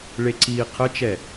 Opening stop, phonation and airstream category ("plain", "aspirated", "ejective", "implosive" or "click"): click